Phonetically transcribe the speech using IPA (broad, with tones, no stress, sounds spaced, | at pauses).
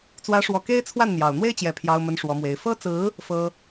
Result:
t͡s w ä˧˥ ʂ w ɔ˨˩ k e˥ ɪ̯ t͡sʰ w a˥˩ n n̪ j ɑ˨˩ ʊ̯ n̪ w e˥ ɪ̯ t͡ɕ j ɛ˨˩ pʰ j ɑ˥ ʊ̯ m ə˥ n ʂ w ɔ˧˥ m w e˧˥ ɪ̯ f ɤ˥ t͡s ɹ̩˧˥ | f ɤ˥